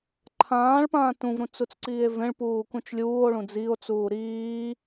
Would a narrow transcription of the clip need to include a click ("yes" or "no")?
yes